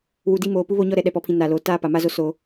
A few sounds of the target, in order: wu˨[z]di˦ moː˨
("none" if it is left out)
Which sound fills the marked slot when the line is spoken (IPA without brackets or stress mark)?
none